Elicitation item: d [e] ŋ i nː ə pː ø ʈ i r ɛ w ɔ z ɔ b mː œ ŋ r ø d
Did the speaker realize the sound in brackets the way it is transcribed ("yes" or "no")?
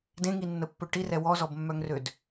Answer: no